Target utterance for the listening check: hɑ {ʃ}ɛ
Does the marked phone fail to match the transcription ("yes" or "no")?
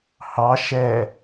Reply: no